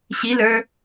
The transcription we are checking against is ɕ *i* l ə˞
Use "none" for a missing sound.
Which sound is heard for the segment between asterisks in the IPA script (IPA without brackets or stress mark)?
i